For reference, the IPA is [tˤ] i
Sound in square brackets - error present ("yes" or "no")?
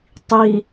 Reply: no